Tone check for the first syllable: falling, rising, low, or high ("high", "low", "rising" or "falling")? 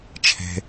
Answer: low